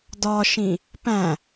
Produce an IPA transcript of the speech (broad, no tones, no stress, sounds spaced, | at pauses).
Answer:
d ɒ ʃ ĩ | p æ̃